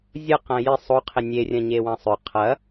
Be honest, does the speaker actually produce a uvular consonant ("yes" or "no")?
yes